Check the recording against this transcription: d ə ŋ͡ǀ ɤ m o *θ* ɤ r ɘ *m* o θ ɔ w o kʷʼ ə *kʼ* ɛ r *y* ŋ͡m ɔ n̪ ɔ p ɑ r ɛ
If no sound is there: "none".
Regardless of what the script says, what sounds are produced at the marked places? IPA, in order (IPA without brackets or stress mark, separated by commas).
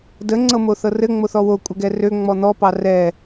θ, ŋ͡m, ɡ, ø